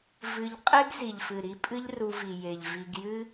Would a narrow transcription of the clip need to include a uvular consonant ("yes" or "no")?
yes